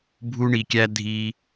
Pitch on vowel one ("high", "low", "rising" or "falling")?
low